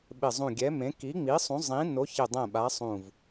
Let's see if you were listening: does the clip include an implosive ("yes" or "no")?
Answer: yes